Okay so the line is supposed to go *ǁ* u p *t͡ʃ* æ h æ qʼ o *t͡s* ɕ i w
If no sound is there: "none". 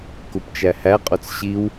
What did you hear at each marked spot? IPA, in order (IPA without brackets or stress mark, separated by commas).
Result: k, t͡ʃ, t͡s